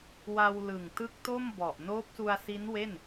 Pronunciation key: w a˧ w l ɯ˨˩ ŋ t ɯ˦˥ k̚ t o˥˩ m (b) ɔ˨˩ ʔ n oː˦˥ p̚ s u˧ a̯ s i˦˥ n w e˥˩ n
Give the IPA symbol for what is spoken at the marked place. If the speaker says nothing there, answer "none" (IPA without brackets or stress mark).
b